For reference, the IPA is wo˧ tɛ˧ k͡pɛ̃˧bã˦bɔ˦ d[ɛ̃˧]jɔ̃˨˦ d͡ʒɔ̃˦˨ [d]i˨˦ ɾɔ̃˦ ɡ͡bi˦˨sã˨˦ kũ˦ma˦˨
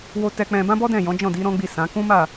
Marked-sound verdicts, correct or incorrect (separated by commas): incorrect, correct